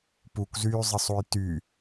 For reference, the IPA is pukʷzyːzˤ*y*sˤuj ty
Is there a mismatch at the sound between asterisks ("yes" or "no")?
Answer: yes